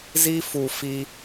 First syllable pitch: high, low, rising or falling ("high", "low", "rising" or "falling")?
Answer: high